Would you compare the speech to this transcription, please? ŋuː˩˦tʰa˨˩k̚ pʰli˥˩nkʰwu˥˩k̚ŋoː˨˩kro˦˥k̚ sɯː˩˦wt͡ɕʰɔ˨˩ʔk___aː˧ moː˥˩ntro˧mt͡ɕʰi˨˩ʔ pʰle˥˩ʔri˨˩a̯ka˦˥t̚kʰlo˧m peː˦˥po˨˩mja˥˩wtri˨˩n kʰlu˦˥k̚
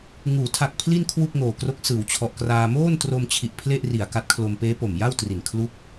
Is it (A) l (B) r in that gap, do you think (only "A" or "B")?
B